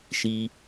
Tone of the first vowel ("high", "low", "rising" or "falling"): high